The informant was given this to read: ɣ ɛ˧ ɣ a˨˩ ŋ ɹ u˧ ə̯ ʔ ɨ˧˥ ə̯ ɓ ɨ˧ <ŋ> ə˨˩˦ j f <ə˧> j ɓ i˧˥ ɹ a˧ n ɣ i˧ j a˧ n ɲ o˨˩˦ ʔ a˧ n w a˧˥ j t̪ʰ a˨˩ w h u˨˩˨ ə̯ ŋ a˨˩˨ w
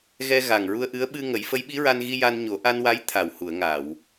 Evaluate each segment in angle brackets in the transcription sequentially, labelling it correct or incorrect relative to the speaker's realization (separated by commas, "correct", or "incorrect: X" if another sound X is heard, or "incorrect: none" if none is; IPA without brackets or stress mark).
correct, incorrect: ə˧˥